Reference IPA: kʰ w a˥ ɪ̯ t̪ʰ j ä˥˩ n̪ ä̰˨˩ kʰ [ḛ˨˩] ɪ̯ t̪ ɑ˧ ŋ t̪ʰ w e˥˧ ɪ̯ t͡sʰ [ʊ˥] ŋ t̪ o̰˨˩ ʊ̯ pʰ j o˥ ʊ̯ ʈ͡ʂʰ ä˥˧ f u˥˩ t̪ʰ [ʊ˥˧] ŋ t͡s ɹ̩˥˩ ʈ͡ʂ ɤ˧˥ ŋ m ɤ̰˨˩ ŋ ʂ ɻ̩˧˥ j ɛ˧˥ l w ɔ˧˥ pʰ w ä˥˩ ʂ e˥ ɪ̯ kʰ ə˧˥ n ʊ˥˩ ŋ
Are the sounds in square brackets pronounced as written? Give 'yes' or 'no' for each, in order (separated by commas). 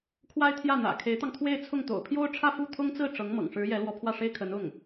no, no, no